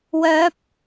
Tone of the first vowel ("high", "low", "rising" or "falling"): rising